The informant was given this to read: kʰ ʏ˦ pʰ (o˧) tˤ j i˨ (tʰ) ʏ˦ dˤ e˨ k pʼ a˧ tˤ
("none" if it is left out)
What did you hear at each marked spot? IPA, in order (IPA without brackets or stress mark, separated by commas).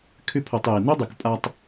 o˧, n